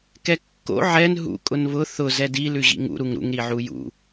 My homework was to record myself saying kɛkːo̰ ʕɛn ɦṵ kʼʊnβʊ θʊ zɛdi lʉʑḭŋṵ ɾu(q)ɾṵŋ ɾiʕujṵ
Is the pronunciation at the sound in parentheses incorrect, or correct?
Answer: incorrect: ŋ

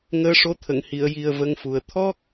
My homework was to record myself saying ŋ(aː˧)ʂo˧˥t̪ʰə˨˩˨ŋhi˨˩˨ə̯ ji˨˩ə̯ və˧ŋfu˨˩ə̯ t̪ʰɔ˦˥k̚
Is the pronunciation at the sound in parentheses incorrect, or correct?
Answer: incorrect: əː˧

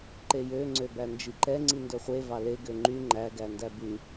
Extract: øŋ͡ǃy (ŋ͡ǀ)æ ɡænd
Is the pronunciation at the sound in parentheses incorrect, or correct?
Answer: incorrect: ŋ͡ǃ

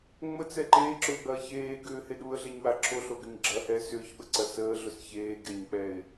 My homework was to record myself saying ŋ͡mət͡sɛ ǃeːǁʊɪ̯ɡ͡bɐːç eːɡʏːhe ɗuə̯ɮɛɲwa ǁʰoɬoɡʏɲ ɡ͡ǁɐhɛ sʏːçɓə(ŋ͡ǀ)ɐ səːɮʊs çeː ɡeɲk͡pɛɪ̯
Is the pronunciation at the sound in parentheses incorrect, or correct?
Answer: incorrect: ǀ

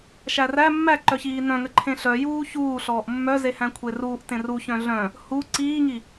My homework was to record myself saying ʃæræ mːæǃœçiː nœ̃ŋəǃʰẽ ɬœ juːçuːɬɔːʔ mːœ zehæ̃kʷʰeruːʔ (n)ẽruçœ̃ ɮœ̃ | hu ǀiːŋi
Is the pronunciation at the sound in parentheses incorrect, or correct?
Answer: incorrect: t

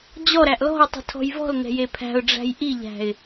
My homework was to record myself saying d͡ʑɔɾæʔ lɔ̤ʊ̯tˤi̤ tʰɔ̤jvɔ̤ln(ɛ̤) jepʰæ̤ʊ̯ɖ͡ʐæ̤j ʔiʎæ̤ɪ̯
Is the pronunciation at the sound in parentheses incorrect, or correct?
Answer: correct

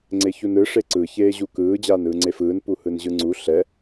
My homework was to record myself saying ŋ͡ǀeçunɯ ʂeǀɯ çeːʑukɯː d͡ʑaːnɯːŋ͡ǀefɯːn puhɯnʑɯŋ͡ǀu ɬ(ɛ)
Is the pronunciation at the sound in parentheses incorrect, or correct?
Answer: correct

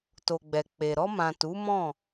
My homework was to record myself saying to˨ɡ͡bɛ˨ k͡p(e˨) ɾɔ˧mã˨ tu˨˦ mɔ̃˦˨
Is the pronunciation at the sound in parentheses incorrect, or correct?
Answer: correct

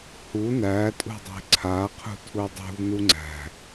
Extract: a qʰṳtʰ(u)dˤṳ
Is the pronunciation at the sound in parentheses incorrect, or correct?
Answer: correct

